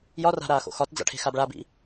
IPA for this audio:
jɒr a̤ɾaːxo̰ xɒtd͡za̰ʈʰe̤ xabɭabḭ

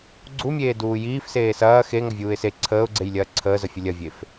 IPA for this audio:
ɡ͡ǀumʲeːduː jiːf seːsɐː xeŋə vʲuːɪ̯se ǀʰəːʊ̯ɡ͡ǀejlʲɐː ǀʰəːzə fʲəlʲɐvʲef

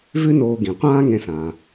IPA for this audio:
vʉ˥noː˧ɡĩ˩qʷãː˥ ŋẽ˧sãː˩

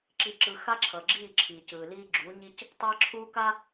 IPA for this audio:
ǁi˨ǁɯ˨ xa˦ǁʰʌ˨ ɡ͡ǁiː˦˨ǁʰiː˨cɯː˨ liː˦ ɡ͡ǁuː˨˦ɲiː˦c | tˤʌː˦ǁʰuː˦ka˦

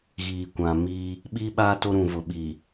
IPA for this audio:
ɣiː˨kʷã˨miː˦ | ɓi˦ɓa˦ to˦ɾũ˨vʊ˨ɓiː˨

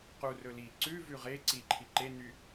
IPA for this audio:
qu rɵli ǀʉ vʉʁe ǀiǃʰi ǃe ny

